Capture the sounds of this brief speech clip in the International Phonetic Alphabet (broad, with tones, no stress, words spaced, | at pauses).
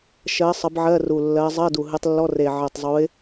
ʃɜ˨˦sˤə˨˦b ʕɜ˧˥˧ru˨˩lːɜ˨˦ zˤɜ˧˥˧du˨˩ɦɨ˨˦tˤlːɔ˧˥˧r e˨˩ʕɜ˨˩tˤzˤu˨˦ɪ̯